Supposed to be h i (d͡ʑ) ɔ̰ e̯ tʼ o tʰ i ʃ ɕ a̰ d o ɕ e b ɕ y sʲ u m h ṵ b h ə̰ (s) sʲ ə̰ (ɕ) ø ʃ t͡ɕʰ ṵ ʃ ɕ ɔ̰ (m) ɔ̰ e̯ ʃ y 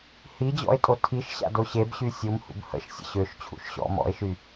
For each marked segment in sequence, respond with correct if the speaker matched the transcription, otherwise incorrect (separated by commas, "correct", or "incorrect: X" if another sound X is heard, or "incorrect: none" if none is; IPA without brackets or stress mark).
correct, incorrect: ʃ, correct, correct